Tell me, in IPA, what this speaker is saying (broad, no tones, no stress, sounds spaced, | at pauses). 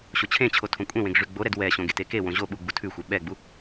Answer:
ɕ o t͡ɕʰ ẽ t͡ɕʰ o tʰ õ kʷʼ ẽ w ẽ ɡ ʐ ʉ ɡ͡b o ɾ ɛ d w ɛ ɕ õ ɡ e t e k e w õ ʑ o ɓ u ɡ͡b u tʰ ʉ xʷ ɛ ɓ ɛ ɡ͡b u